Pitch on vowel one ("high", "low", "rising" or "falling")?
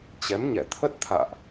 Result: rising